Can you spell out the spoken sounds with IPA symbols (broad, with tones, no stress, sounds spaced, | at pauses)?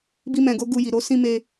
b i˧ m ɛ̃˨ ɡ o˨˦ ɡ u˧ j i˨ ɾ o˧ s ĩ˧ m e˧